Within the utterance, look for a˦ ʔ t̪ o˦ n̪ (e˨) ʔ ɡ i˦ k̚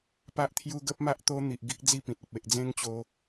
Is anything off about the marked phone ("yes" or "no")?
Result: yes